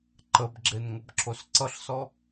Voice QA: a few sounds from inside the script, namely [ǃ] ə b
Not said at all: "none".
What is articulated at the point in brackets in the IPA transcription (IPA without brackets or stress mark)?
ǃ